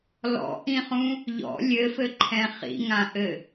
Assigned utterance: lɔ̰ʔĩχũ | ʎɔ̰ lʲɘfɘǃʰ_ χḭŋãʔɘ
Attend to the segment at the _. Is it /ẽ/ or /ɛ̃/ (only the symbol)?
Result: ɛ̃